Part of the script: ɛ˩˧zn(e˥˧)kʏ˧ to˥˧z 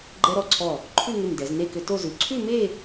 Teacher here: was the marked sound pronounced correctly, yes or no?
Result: yes